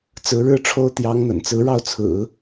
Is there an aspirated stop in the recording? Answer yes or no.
yes